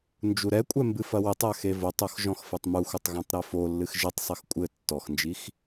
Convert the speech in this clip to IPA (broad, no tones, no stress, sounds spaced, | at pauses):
n d͡ʒ u ɾ ɛ kʷʼ ɛ m b ɨ f ɐ w ɘ tˤ a x e v o tˤ o x ʒ ɔ̃ x f ɘ tˤ m u xʷ ɐ tˤ ɣ ã tˤ ɾ ɛ f o lː ɨ x ʒ ɨ tˤ sˤ ɘ x kʷʼ ɘ tː ɔ x n d͡ʒ i x